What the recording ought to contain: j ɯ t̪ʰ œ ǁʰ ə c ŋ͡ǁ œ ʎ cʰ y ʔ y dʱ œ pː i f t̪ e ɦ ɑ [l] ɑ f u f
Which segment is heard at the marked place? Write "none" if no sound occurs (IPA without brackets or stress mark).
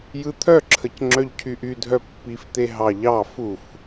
ʎ